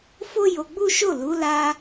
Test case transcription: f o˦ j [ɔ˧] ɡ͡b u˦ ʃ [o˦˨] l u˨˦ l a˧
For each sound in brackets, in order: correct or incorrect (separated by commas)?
incorrect, correct